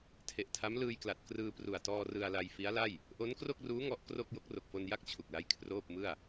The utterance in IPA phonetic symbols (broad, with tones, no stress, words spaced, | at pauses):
tʰe˨˩ʔtʰa˦˥m lɯː˧jkla˨˩t̚ krɯː˧pru˨˩a̯tɔː˧ rɯ˧a̯la˧jfi˦˥a̯la˥˩j | ʔo˦˥nkro˥˩k̚ruː˦˥ ŋɔ˦˥ʔkro˥˩k̚ jo˦˥k̚ro˨˩k̚fo˧nja˥˩k̚ t͡ɕʰu˨˩k̚la˦˥j kʰroː˥˩p̚mɯ˥˩a̯